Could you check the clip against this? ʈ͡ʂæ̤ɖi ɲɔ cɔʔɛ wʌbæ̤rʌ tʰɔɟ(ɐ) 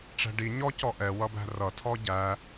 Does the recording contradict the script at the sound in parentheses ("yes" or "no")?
yes